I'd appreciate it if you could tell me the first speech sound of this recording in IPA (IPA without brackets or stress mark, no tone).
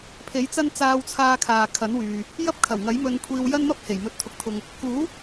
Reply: pʰ